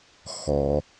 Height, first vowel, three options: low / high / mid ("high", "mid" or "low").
mid